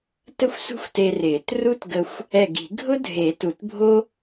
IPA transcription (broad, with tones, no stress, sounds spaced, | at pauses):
t ə˥ xʷ s ṳ˥ xʷ t e˧ r ɪː˨˩˦ t r u˥ t ɡ ə˧ xʷ | ɛ˧˩ ɡ i̤˨˩˦ ɡʱ ʊ˥ dʱ e˨˩˦ t u˨˩˦ t bʱ o˥